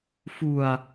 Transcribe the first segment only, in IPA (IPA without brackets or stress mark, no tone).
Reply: f